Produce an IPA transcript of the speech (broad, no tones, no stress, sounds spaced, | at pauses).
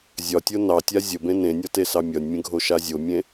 zʲ ɒ tʲ o n ɑ tʲ a zʲ ə b ẽ n ẽ nʲ ɒ t e s ɑ mʲ ɒ nʲ mʲ ə̃ ɡʱ o ʃ a zʲ o mʲ ẽ